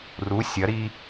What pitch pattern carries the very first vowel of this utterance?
rising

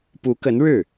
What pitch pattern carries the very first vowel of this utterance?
rising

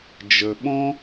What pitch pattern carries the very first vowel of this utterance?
low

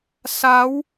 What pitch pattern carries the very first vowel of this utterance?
rising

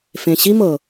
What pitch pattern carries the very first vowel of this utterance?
low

